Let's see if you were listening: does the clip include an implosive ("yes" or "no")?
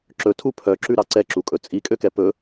no